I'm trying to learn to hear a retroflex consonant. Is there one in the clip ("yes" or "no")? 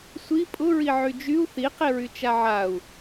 no